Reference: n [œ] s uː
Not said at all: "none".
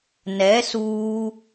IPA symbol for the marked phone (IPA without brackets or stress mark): ɛ